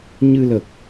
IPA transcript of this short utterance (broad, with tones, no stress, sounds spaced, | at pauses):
ɲ ɨ˧ l ə˨˩ k̚